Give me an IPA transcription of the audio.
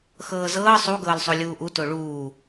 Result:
x ɤː z ɤː sˤ u ɡ ɤː l sˤ o lʲ uː ʔ u t o ɭ uː

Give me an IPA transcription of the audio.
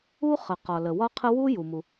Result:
u˥ χ ə˩ q ɒ˩ l ə˩ w ɒ˥ qʰ ə˥ w u˥ j u˩ m u˩

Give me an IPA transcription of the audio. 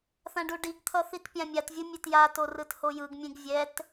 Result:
θ ã ɖ u ɖ i ɡ t̪ʰ ʌ θ i t pʲ ã mʲ a t vʲ ɯ mʲ e t j a t o r ɯ t h o j ɯ ɡ mʲ ẽ ɡ vʲ ɛ t

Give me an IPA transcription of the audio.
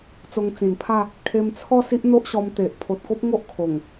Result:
t͡s o˧ ŋ t͡s ĩ˨˩ n pʰ a˥˧ | kʰ e˧ m t͡sʰ ɔ˥˧ s i˦ ʔ n̪ o˦ ʔ ɕ ɔ˧ m t̪ e˨ ʔ pʰ o˨ t̚ k o˦ p̚ ŋ o˦ ʔ kʰ o˨˩ ŋ

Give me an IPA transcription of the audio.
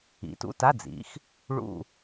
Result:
ḭ˩˥ t ṵ˧˥˧ t a˧˥˧ d͡z ḭ˩˥ x | ɭ ṵ˦˨

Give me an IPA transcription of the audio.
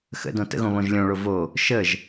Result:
x ə̰ d õ t ə̰ ɣ õ β õ ʒ lʲ õ ɭ o v o | ʃ ə ʒ

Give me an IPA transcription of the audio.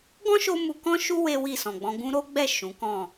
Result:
ɡ ɔ̃˦ ʃ o˧ m u˧ k ɔ̃˦ ʃ u˦ w e˦ w i˦˨ s ɔ̃˨ ɡ͡b ɔ̃˧ ɡ ũ˧ ɾ o˦ ɡ͡b ɛ˦˨ ʃ ũ˨˦ k ɔ̃˦˨

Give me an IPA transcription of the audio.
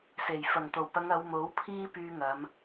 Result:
s e˨˩ j f ɐ˨˩ ŋ t̪ o˨˩ w p ɐ˨˧ ŋ ɐ˨˧ w m o˨˥ w pʰ iː˥ p yː˧ ŋ ɐ˨˧ m

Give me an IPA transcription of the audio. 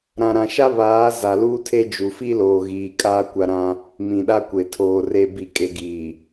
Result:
ɾ ã˨ ɾ ã˨ ʃ a˦ β aː˨˦ z a˨ l uː˦ tʰ e˦ d͡ʒ u˨ f i˦ l oː˨ ɣ iː˨ kʼ aː˦ kʷ a˦ ɾ ã˦ | m ĩ˨ ɗ a˦ kʷ e˨ tʰ oː˨ r e˨ b i˨ kʼ e˨ ɡ iː˨

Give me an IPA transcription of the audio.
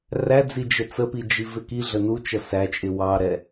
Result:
r æ d͡z i d͡ʒ ə t͡s ə p i d͡ʒ i v ɪ k i ɮ ə n u t͡ʃ ʌ s æ t͡ʃʼ ɪ w ɑ ɾ ɛ

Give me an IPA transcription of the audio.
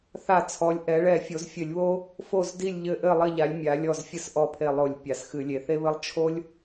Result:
θ a˧˩˧ t͡sʰ ɔ˩˧ lʲ ʔ ɛ˩˧ ɭ ɛ˧˩˧ fʲ o˩˧ z fʲ ɘ˧˩˧ lʲ β o˦ | f o˧˩ z d i˧˩ lʲ ʎ ɘ˧˩ ʔ ɘ˧˩ lˠ ɘ˧˩ ʎ a˩˧ lʲ mʲ a˩˧ lʲ ɔ˧˩ z fʲ ɘ˦ s ʔ ɔ˧˩ pʰ e˧˩ lˠ o˧˩˧ lʲ pʲ a˩˧ s x ɨ˧˩˧ lʲ e˩˧ θ e˦ β ɘ˦ lˠ t͡ʃʰ o˦ lʲ

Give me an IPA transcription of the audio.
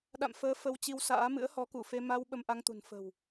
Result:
ɗ a̰˧˨ m f əː˨˦ f ə˧ w t͡ɕ i˧ w s a̰ː˧˥ m ɨ̰˧˥ ə̯ h ɔ˨˦ k u˧˩ f e˧ m a˧ w ɓ ə˧ m ʔ a˧ ŋ t̪ ṳ˨˩ n f ə̤˨˩ w

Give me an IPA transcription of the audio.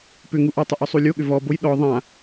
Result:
p ʏ ŋ u ʔ ɔ tˤ ʏ ʔ ɔ sˤ u lʲ o ɠ ʏ v ɔ b o j ɗ ɔ ðˤ ã

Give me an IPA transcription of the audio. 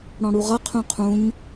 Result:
ɽ ɔ̃ ɽ u ʁ ʌ qʰ ũ qʰ ũ ɲ

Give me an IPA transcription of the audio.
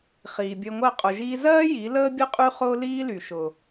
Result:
χ iː˨ bʲ əː˧ ŋʷ ɜ˦˨ qʼ ʊ˨ ʒ iː˧ z ɜː˦ j i˨˦ l əː˦ bʲ ə˦ qʼ y˦ χ ʊː˦ l iː˦ l y˨ ʃ ʊ˨

